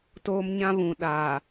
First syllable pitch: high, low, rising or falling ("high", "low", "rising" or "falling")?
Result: high